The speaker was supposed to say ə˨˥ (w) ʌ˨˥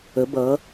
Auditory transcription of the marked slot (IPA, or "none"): b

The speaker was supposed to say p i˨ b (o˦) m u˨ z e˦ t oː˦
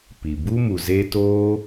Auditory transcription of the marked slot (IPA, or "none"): u˦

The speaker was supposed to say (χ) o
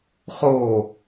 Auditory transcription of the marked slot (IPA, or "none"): χ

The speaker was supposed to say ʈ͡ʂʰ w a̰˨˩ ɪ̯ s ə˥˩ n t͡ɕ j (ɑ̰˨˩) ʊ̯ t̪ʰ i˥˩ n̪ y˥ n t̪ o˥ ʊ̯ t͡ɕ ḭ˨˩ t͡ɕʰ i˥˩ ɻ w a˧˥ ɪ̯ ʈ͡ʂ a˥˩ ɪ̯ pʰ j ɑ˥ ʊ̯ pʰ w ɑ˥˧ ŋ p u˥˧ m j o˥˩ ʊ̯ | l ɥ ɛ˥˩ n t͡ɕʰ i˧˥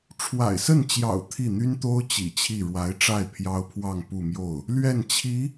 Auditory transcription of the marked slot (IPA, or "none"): ɑ̰˨˩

